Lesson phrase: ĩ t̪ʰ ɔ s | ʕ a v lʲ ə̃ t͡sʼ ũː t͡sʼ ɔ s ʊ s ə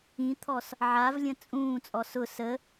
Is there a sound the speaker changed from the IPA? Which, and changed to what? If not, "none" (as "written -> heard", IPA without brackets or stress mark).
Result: none